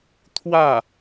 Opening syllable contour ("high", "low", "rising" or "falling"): falling